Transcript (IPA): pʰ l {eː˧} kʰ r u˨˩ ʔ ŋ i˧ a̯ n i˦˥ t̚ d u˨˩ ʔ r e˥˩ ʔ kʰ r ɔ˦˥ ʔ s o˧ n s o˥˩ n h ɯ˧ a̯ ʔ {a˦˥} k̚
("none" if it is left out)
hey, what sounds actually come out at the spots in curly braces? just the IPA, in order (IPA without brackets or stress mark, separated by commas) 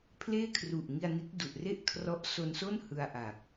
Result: eː˥˩, a˨˩